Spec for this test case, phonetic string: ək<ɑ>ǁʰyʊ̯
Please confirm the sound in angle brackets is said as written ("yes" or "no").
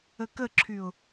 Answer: no